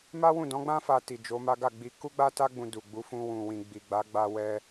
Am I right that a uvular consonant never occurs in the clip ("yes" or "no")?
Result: yes